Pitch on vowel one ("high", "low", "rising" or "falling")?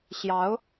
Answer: rising